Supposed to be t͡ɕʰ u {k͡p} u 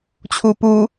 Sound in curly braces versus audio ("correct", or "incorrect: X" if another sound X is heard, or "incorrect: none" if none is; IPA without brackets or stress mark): incorrect: p